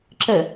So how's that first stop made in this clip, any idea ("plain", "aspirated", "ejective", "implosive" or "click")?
click